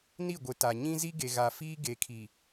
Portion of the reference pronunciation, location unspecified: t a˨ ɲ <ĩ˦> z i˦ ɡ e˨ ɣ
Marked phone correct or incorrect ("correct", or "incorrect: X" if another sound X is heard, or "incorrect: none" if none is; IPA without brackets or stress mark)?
correct